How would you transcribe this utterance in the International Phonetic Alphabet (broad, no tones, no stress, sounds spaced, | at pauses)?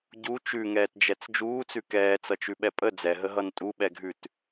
ɟ u t͡ʃ ʉ ŋ ɛː t d͡ʒ ɛ t͡s d͡ʒ uː t͡s ʉ k ɛː t͡s ʌ t͡ʃ ʉ ɓ ɛ pʼ ə d͡z ɛ ɦ ə ɦ ʌ n tʼ u ɓ ɛ ɡʱ ʉ t